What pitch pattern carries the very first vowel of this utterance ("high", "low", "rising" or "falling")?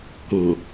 low